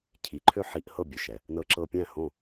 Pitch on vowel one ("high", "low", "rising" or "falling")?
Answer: rising